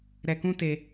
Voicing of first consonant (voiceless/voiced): voiced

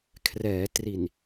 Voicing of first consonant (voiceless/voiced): voiceless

